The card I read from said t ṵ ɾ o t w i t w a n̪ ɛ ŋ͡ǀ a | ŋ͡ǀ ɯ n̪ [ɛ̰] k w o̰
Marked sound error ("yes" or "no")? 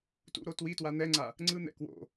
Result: no